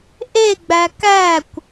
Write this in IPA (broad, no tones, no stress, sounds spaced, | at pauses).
ʔ e ɡ͡b æ k æ kʷ